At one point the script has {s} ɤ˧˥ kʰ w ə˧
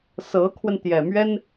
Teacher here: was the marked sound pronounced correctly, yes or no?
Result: yes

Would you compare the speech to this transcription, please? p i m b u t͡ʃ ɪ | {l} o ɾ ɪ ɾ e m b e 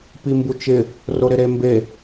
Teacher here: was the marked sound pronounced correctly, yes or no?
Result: no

